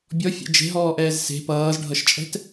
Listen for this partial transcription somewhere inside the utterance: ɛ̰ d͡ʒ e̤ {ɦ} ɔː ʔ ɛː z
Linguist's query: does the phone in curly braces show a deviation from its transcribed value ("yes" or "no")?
no